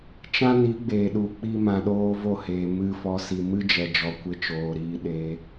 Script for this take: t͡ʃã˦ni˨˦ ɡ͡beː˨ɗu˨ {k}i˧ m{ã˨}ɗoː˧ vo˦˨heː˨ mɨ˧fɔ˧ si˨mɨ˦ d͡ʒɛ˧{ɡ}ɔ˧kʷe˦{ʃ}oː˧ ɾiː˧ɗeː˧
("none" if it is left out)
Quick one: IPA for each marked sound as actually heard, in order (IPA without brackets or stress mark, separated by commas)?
k͡p, ã˨, d͡ʒ, t͡ʃ